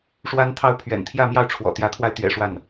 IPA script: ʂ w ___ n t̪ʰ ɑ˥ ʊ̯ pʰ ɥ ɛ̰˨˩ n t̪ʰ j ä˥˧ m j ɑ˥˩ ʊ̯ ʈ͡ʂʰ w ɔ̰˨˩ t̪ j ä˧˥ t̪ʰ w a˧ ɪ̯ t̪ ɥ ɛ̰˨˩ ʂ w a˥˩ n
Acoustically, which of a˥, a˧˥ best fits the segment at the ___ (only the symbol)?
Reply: a˥